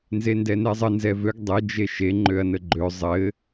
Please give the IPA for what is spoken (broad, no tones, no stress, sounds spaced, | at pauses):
n z e n d ɛ n ɛ zˤ ə n z ɛ v ø ɡ dˤ ɘ d͡ʒ e ʃ e ŋ͡ǃ ø ɐ̯ n ə ɡ͡ǃ ø zˤ ɘ